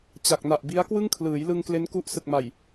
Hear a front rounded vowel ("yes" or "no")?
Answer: no